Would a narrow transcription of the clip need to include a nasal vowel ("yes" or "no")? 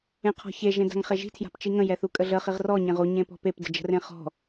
yes